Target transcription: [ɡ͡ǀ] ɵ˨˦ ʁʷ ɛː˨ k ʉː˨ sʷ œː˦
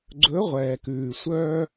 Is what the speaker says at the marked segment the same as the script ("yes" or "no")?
yes